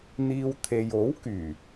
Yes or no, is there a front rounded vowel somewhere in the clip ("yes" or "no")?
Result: yes